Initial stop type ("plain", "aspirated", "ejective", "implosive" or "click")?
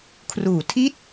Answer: aspirated